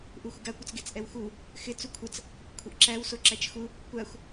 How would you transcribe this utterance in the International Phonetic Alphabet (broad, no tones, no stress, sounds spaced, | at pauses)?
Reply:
ʔ u xʷ ɪ ɡ a kʷ ə t͡s ɡ e t͡s ʔ ɛ w x u | x ɪ t͡s u kʷʰ ə t͡s | kʷʰ ə ʔ ǁ æ w s o ǁ æ t͡ʃ x u | kʷ a xʷ